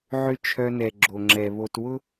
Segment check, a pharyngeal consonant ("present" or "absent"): present